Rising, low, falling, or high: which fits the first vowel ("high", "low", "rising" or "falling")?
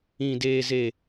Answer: low